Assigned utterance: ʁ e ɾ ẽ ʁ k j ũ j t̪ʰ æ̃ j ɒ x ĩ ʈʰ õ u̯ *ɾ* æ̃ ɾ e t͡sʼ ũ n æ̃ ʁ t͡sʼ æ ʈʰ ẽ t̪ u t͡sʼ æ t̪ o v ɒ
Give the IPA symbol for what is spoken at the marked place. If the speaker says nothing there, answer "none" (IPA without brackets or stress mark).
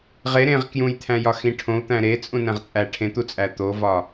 t̪